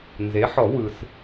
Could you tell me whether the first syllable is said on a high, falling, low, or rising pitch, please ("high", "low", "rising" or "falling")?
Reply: rising